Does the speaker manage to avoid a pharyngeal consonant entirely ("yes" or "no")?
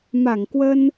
yes